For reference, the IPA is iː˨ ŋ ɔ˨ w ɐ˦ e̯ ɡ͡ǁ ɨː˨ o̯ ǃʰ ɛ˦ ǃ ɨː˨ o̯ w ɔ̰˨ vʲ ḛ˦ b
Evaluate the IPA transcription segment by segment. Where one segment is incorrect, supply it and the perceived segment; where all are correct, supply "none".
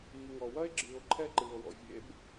none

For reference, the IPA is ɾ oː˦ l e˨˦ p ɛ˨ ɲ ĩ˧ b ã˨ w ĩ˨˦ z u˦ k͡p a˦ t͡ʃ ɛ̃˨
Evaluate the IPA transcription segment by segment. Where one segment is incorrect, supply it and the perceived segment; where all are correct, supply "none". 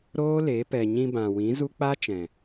none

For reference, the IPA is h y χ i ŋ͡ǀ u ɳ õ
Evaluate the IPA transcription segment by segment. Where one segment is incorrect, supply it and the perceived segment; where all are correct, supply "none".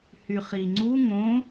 ɳ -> ŋ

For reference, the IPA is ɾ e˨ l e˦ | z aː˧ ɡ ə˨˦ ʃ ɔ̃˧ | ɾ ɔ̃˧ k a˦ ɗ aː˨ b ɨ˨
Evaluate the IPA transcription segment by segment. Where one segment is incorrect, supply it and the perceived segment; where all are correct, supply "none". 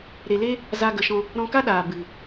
none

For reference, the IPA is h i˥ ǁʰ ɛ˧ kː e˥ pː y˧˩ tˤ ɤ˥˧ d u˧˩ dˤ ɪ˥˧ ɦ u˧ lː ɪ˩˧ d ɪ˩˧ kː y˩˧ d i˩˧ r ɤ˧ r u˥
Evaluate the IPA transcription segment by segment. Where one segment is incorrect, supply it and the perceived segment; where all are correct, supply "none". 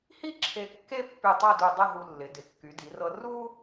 ɛ˧ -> e˧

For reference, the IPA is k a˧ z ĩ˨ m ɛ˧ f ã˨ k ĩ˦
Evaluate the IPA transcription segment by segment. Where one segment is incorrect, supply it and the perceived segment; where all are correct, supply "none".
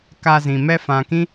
none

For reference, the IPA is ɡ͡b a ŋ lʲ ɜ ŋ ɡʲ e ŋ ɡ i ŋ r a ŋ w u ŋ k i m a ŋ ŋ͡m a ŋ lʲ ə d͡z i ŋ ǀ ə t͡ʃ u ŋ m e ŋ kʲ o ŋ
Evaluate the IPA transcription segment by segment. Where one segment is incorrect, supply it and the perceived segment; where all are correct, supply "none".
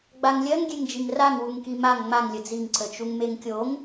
ɡ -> d͡ʒ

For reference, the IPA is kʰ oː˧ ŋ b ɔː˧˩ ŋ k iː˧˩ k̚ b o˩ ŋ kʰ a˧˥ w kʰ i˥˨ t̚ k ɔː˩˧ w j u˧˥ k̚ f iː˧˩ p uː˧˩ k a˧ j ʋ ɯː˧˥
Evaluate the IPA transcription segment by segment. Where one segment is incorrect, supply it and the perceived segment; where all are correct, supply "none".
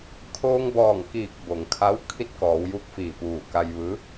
none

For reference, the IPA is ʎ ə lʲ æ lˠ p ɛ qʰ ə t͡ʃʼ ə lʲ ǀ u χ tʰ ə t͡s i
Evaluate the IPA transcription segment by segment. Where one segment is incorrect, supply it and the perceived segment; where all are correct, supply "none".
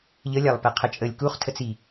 ǀ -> k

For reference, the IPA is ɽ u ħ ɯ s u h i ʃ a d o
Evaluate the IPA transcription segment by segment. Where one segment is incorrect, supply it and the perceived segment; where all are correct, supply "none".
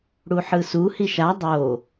d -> dˤ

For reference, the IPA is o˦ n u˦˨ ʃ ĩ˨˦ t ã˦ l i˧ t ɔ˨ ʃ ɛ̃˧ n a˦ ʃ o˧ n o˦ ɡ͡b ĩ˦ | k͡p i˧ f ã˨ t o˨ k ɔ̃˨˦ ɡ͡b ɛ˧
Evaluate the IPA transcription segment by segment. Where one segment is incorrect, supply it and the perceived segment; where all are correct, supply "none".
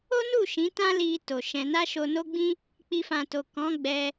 ɔ˨ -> o˨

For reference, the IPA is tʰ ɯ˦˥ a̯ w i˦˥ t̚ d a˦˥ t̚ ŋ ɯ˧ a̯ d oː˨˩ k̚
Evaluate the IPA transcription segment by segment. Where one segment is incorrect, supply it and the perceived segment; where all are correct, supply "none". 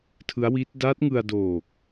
none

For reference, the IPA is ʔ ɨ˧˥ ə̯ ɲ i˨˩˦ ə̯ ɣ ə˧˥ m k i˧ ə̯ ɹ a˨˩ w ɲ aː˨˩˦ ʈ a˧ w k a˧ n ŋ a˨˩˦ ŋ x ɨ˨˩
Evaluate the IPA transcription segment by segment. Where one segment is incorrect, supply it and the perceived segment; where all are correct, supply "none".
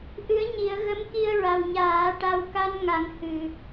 x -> h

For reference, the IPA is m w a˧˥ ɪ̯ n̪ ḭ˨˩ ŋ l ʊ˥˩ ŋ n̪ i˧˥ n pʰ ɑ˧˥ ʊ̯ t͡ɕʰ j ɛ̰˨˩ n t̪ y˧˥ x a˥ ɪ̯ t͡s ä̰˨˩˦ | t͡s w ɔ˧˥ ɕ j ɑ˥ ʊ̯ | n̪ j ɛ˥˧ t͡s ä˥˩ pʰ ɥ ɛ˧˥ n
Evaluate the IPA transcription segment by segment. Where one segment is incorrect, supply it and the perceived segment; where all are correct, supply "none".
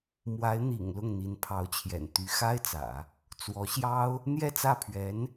none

